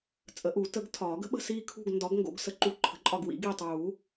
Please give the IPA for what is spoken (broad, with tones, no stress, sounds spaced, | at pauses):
t͡sʼ ə˨˩˦ ʔ u˨˩˦ t ə˨˥ ɡ tʰ ɒː˨˩˦ ɡ ə̤˨˥ ɓ ə̤˦˨ s iː˦˨ kʰ ṳ˦˨ ɡ n d ɒ˨˥ ɡ ŋ ɡ o̰˨˩˦ ɡ s ə˨˩˦ ǃ u˨˥ ǃʰ ə̤˨˥ ǃʼ ɒ˦˨ ɡ w ḭ˨˥ ɡ iː˦˨ tˤ uː˨˩˦